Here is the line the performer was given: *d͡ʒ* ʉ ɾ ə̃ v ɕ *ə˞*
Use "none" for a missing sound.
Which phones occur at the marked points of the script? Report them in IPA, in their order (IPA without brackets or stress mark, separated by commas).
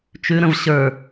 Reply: t͡ʃ, ə˞